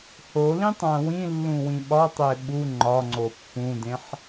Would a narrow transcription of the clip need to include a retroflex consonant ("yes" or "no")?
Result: no